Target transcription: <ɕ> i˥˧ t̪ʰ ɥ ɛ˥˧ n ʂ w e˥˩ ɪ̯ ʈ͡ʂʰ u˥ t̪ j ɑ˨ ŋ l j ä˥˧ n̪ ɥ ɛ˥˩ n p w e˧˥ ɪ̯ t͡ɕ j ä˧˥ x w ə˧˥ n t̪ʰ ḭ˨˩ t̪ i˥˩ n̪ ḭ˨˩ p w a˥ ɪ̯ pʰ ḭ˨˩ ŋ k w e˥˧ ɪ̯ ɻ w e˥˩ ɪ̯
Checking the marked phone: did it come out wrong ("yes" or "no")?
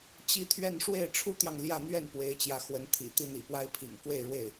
yes